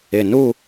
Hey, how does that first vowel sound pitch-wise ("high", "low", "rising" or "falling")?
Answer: low